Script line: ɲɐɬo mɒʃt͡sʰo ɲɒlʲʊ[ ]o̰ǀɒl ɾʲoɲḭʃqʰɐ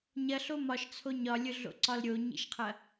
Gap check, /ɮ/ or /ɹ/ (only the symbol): ɮ